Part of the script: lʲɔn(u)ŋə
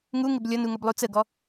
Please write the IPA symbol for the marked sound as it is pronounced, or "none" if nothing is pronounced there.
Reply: u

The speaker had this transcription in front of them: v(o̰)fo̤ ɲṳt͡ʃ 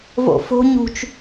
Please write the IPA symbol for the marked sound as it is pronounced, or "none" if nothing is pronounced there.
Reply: o̰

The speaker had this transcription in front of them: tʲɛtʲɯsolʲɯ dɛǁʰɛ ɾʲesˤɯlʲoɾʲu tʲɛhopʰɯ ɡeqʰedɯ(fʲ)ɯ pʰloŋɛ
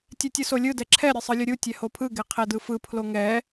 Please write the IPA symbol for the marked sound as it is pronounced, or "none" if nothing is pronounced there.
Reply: f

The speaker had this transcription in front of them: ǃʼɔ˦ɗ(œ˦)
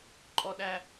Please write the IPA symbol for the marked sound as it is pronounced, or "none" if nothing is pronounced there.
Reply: æ˦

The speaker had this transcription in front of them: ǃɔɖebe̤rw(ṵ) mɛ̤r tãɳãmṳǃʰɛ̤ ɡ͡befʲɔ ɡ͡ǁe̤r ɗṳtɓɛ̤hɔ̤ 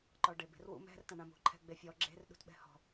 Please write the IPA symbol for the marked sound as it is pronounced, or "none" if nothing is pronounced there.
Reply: ṵ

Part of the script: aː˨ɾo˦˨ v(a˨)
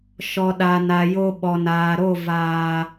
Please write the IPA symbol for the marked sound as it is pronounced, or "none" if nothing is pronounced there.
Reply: aː˨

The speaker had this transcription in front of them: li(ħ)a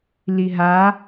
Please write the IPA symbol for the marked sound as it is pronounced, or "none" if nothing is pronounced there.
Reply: ɦ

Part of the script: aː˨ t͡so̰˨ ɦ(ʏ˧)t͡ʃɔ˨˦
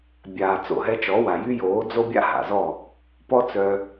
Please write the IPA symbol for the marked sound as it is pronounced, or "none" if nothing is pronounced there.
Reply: ɛ˧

